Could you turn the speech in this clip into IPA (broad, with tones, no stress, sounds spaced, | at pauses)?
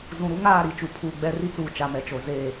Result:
z ũ˨ ɾ u˦ ŋ aː˦˨ ɾ i˨ t͡ʃ u˨ pʰ uː˨ ɡ͡b ɛ˦ r i˦ t͡s uː˨ t͡ʃ a˨ m ɛ˨ t͡ʃ o˨ z eː˦˨